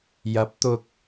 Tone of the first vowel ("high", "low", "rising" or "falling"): rising